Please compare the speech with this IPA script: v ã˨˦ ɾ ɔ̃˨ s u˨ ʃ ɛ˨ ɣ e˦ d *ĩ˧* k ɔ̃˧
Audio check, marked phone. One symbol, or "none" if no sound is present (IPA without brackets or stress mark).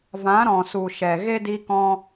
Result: i˧